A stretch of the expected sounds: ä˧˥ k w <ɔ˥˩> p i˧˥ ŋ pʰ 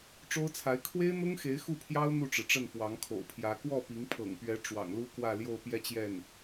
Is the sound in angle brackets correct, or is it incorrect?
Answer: correct